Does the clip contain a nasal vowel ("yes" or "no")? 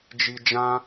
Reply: yes